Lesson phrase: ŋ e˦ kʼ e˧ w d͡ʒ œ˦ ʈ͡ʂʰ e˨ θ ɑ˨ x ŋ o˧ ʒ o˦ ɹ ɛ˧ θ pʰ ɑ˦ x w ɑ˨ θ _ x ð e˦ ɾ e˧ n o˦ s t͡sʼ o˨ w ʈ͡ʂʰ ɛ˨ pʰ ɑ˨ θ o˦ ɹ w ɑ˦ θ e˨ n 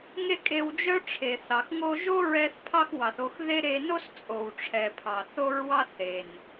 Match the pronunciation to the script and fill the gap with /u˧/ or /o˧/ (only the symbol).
o˧